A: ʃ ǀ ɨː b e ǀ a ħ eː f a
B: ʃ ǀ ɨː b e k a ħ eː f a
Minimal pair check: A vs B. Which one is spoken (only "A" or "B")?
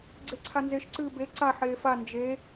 A